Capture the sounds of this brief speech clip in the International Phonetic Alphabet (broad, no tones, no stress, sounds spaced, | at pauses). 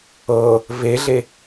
ɤ | v e ɮ e